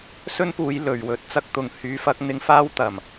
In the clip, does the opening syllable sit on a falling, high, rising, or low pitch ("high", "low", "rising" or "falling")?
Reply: high